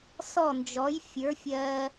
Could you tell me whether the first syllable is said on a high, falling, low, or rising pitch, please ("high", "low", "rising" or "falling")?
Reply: falling